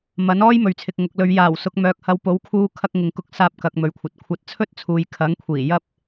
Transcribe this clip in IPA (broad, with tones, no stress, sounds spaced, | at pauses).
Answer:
m ɐ˨˥ n ɔː˥ j m ɵ˨ ɥ t͡sʰ ɪ˨ k̚ ŋ ʊ˨ k̚ l ɵ˨˧ ɥ j aː˨˩ w s ʊ˨ k̚ m œː˨ k̚ h ɐ˨˧ w p o˨˥ w kʰ uː˧ kʰ ɐ˧ k̚ ŋ ɪ˨ ŋ k ʊ˧ k̚ s aː˧ p̚ k ɐ˨ k̚ m ɵ˨ ɥ kʷʰ ɐ˨ t̚ kʷʰ ɐ˧ t̚ t͡sʰ ɵ˥ t̚ t͡sʰ uː˨ j kʰ ɐ˨˥ ŋ kʷʰ iː˨˩ j ɐ˥ p̚